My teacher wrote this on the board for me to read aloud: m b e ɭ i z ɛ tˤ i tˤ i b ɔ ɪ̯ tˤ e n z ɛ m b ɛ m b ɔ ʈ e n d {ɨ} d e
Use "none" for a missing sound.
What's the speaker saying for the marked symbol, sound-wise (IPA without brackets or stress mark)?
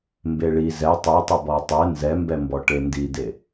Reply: i